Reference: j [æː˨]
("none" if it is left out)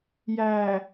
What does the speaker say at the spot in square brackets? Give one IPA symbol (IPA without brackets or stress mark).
æː˨